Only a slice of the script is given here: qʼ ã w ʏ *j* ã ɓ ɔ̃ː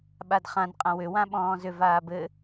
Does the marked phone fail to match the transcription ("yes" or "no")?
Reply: yes